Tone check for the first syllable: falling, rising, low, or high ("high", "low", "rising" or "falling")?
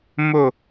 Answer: falling